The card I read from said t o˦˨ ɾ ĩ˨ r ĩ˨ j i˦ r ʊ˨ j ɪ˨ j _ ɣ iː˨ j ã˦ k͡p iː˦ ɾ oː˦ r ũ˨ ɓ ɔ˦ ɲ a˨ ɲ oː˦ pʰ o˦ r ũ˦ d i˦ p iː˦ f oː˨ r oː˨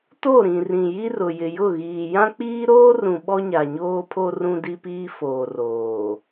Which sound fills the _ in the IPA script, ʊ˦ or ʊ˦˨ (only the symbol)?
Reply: ʊ˦˨